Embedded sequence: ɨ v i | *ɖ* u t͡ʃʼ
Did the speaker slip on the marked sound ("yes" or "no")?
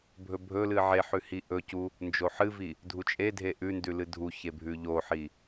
yes